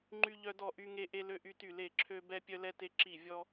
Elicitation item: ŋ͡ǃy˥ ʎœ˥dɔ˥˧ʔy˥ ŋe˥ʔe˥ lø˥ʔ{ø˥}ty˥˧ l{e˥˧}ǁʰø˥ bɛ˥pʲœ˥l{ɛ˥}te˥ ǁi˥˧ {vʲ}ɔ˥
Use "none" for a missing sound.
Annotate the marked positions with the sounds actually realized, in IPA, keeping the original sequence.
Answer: y˥, e˥˧, ɛ˥, vʲ

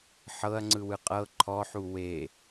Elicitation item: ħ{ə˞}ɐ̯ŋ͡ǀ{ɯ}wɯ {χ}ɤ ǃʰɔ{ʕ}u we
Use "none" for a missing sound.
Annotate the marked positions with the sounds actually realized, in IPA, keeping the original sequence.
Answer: ɤ, ɯ, qʼ, ħ

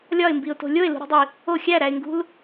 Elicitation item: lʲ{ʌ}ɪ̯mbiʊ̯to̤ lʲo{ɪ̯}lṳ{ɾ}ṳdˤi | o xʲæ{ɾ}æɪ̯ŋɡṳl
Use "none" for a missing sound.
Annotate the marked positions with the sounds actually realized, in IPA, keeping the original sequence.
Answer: ɒ, ɪ̯, ɾ, ɾ

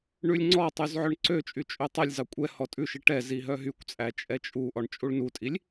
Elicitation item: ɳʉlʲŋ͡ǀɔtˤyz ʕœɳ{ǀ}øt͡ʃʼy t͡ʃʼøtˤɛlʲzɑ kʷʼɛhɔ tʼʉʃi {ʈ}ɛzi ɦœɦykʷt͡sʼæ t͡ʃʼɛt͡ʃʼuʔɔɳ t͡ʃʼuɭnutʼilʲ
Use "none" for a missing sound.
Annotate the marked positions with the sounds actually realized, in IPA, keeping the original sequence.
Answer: ǀ, ʈ

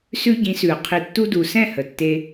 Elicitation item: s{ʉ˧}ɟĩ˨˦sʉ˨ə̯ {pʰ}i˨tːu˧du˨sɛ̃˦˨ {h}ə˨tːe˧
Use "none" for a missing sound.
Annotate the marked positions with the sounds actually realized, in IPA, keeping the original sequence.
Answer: ʉ˧, qʰ, h

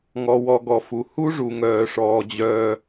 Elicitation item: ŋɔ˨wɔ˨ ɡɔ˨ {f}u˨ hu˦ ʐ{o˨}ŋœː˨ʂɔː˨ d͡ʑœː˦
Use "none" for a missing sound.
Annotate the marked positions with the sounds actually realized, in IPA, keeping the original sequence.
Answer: f, u˨

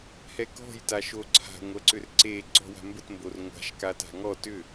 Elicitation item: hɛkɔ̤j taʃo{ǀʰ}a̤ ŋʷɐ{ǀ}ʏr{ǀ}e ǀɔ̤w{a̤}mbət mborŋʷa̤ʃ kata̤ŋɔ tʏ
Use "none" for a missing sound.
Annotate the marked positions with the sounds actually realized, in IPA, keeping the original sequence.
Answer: ǀʰ, ǀ, ǀ, a̤

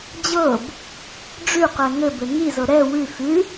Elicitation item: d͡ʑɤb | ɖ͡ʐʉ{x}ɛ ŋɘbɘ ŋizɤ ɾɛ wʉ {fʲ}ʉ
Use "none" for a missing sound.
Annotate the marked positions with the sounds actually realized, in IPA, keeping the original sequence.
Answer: q, f

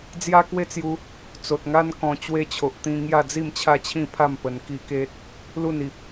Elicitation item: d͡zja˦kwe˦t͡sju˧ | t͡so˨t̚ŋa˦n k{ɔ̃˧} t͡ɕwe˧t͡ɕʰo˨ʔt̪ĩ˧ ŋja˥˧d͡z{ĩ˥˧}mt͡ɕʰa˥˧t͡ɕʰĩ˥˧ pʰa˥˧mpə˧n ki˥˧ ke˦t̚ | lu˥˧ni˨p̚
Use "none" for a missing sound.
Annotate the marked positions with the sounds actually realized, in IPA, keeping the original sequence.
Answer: ɔ̃˧, i˥˧

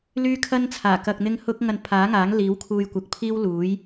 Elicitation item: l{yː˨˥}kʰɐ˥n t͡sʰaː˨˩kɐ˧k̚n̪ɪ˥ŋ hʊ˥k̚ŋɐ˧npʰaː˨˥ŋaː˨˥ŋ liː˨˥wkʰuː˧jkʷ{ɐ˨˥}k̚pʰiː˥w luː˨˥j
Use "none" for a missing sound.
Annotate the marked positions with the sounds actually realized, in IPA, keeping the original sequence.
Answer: yː˥, ɐ˨

